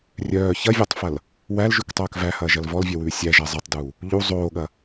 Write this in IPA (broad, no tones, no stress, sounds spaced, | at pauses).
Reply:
rʲ œː ç ɐ vʲ ɔ tˤ f ɐ l | w æ l ʒ ʉ k tˤ œː k v æ h ɐː ʒ ɐ l v ɔ l vʲ œ w ʉː sʲ æ ʒ æ zˤ ɐ tˤ d uː | ʎ u zˤ oː ɠ ɐ